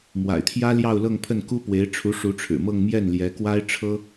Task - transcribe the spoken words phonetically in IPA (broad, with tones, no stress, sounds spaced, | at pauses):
m w a̰˨˩ ɪ̯ t̪ʰ j ä˥ l j ɑ˥˧ ʊ̯ l ɤ˥˧ ŋ pʰ ə˥˩ n k u˥ p w e˧˥ ɪ̯ ʈ͡ʂʰ u˧˥ ʂ u˧˥ ʈ͡ʂʰ ɻ̩˨˩ m ɤ˥˧ ŋ m j ɛ˥˩ n l j ɛ˧˥ k w a˥ ɪ̯ ʈ͡ʂʰ ɤ˥